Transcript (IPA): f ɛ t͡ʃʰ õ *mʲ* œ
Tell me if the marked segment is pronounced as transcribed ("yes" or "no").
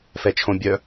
no